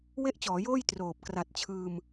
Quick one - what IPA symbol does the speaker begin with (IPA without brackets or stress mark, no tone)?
w